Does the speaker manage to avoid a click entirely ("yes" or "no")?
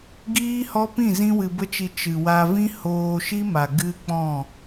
yes